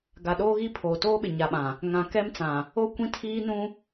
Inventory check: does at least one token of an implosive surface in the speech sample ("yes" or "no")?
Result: yes